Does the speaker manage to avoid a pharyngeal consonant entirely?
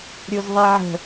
no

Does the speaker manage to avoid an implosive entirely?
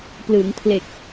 yes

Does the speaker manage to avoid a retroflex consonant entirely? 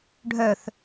no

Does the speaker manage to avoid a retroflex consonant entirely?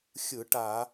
no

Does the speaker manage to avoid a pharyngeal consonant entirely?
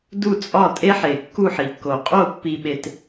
no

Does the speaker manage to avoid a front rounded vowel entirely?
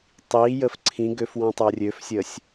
no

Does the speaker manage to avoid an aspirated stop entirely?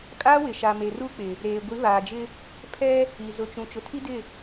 no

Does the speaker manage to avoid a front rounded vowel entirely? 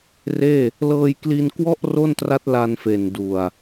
yes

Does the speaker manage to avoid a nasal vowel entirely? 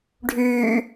yes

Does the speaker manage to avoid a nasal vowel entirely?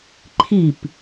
yes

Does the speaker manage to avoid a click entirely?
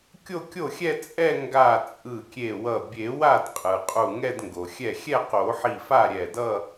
yes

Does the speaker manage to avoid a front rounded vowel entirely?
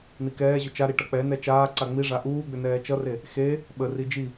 no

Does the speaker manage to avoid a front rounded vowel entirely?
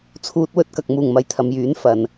no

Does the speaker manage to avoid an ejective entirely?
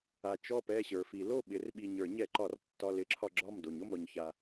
yes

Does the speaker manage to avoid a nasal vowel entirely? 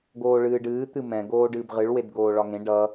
no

